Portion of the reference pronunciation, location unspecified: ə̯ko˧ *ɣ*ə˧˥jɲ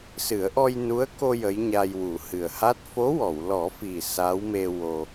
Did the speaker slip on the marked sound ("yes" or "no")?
yes